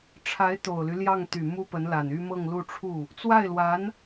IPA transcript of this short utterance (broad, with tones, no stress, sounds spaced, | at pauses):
ʈ͡ʂʰ a˧˥ ɪ̯ t̪ o˨˩ ʊ̯ l y˦ l j ɑ˥˩ ŋ t̪ y˨˩ m u˥ p ə˧˥ n l a˨˩ n y˥ m ɤ˥˧ ŋ l u˥˧ ʈ͡ʂʰ u˥˩ | t͡s w a˥˩ ɪ̯ l w a˧˥ n